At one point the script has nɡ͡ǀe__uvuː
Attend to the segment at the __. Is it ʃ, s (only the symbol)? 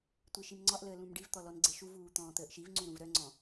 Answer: ʃ